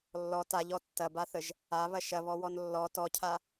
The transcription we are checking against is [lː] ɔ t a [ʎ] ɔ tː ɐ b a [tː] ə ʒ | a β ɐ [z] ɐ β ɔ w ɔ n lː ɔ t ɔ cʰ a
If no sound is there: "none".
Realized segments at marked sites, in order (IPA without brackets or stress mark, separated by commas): lː, ʎ, θ, ʃ